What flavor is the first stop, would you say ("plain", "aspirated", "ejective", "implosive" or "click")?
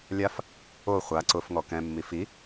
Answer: click